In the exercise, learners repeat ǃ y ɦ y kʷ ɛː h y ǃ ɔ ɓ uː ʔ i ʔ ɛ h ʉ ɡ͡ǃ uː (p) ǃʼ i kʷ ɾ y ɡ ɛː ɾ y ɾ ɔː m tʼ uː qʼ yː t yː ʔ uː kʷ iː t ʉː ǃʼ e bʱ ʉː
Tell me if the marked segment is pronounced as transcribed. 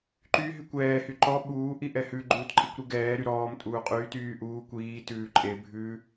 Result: no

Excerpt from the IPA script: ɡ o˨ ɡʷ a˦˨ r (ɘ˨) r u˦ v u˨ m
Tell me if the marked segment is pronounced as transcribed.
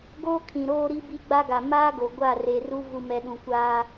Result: no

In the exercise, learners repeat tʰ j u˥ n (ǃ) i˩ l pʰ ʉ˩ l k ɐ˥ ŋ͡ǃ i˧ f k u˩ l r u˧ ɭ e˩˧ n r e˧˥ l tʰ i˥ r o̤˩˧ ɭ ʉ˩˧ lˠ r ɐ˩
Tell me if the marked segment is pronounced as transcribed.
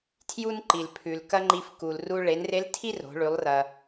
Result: yes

